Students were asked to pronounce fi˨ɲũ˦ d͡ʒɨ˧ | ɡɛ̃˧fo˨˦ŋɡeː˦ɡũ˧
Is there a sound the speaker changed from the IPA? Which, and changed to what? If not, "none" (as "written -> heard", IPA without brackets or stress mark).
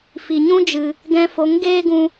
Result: none